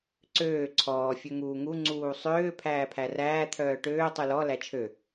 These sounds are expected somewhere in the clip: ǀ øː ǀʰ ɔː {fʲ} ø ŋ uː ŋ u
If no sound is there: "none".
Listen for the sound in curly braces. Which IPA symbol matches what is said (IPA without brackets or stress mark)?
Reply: fʲ